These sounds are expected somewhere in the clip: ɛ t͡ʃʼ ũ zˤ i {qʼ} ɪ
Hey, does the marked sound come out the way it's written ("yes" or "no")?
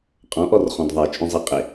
yes